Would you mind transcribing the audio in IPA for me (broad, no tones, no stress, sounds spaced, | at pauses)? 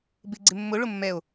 b ɪ ɡ͡ǀ ɪ mː ʊ ɭ ʊ mː ɛ o̯